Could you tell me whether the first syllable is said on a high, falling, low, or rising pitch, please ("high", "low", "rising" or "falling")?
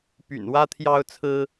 low